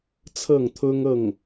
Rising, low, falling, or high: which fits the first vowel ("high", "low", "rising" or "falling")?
falling